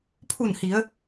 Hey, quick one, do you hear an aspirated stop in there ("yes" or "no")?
yes